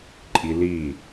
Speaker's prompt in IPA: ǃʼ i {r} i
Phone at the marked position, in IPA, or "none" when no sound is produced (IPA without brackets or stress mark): l